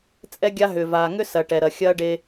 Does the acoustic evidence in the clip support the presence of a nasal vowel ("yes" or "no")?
no